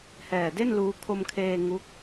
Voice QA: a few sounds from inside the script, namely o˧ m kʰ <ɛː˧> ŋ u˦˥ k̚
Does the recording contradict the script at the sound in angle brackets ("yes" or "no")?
yes